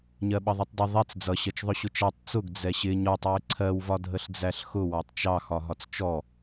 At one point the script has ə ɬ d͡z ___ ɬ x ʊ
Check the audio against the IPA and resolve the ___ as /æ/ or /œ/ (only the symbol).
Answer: æ